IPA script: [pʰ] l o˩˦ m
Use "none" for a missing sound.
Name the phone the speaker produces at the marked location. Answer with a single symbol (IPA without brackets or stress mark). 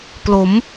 p